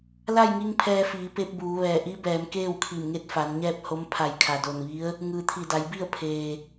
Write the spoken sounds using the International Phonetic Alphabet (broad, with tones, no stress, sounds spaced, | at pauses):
l a˥˨ j ŋ i˧ ŋ pʰ ɛː˧ f iː˩˧ p e˧ p̚ b uː˩˧ ʋ ɛː˧˩ ʔ i˧˥ b ɛː˩˧ m k eː˥˨ w kʰ i˧˩ m ŋ e˥˨ t̚ f a˩˧ n ɲ ɛː˥˨ p̚ h o˧˥ m pʰ a˧˩ j kʰ a˩ d o˧˩ n ʋ i˧˥ ə̯ | ŋ ɯː˩ t̪ʰ i˧˩ d a˩˧ j b i˥˨ ə̯ pʰ eː˩